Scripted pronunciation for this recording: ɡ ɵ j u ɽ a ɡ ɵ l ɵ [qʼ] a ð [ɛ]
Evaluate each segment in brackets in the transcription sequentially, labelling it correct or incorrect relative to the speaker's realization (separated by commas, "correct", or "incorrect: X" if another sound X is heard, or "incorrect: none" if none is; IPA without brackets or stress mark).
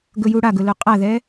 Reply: correct, correct